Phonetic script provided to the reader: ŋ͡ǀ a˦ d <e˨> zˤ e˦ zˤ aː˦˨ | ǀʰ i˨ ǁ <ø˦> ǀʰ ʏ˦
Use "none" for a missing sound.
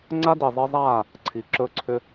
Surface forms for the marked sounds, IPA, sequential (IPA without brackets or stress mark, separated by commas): i˨, ɵ˦